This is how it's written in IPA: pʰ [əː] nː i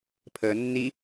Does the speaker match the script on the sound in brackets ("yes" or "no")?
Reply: yes